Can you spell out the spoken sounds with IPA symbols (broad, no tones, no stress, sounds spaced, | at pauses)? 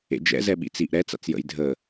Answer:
ḛ d͡ʒ ɛ̰ z ɛ ɓ ḭ t͡s i ʔ ɾ ɛ t͡s a̰ t͡s j ə̰ j dʱ ə